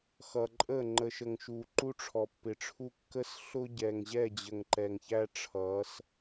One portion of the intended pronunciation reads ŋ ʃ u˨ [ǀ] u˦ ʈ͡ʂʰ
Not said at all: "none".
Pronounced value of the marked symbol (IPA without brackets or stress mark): ǃ